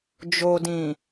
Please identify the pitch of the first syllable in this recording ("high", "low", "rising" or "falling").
low